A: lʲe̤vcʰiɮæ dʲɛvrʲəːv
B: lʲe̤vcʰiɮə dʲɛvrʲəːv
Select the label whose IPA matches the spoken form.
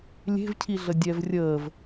B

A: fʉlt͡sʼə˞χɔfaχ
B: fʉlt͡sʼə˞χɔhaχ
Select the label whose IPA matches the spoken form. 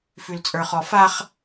A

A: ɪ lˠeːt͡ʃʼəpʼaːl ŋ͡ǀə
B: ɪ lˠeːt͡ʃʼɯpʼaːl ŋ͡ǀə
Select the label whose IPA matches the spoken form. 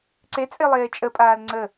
A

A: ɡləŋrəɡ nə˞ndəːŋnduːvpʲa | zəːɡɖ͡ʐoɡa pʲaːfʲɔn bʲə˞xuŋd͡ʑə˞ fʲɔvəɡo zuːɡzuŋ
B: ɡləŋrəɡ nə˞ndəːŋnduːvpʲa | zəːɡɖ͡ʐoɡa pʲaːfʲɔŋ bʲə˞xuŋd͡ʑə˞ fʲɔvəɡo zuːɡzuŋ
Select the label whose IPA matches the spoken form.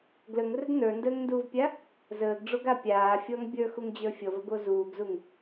B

